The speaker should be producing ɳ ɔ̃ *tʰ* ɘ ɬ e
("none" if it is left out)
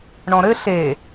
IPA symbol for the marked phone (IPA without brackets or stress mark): ɾ